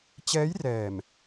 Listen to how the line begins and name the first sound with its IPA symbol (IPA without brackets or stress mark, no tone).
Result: t͡ɕ